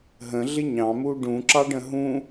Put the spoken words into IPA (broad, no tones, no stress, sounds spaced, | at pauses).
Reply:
ɦ ə̃ ɮ ɪ ɲ ɑ̃ m u ɖ ũ ǁ ɑ ɖ ə̃ ɦ ũ